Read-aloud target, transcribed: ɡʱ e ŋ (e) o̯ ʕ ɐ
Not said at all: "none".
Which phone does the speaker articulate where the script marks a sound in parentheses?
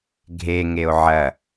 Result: e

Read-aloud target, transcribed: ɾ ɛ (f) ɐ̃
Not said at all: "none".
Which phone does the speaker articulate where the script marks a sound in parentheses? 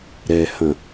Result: h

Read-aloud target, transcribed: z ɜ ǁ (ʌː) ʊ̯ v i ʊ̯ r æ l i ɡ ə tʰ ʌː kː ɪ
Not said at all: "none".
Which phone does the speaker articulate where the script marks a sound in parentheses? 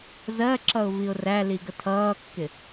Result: ʌ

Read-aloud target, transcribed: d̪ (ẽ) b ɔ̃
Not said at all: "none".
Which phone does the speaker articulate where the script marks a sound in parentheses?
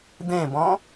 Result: ẽ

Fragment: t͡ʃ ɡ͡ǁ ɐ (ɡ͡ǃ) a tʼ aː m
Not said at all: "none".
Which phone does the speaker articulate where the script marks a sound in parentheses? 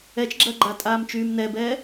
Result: ɡ͡ǃ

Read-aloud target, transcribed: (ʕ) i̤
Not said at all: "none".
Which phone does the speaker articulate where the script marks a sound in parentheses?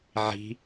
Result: ʕ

